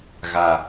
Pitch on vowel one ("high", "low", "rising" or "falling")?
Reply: low